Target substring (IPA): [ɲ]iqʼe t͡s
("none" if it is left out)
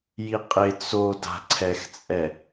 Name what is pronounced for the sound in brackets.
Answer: j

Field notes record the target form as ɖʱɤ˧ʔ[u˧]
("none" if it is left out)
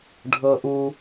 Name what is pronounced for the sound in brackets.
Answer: u˧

